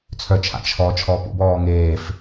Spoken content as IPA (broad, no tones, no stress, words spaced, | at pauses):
t͡sʰœt͡ʃʰa̰ t͡ʃʰɔ t͡ʃʰɔːpṵbɔː ŋeːf